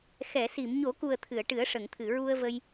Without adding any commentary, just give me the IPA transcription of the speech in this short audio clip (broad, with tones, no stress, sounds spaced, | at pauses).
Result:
x ɛ˨˩˨ s i˨˩˨ m ɲ o˨˩˦ k u˨˩ ə̯ t̪ʰ ɨ˨˩˨ ə̯ ʈ ɨ˨˩˦ ə̯ ʂ ə˨˩˨ ŋ t̪ʰ ɨ˨˩˨ ɹ u˧ ə̯ v ə˧ j